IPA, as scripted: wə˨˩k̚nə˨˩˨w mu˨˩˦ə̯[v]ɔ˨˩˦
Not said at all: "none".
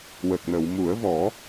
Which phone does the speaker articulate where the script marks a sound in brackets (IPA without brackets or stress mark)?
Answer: v